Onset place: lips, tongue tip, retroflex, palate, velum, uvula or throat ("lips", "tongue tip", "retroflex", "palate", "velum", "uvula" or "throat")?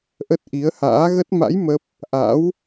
throat